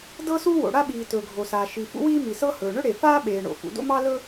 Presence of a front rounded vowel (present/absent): absent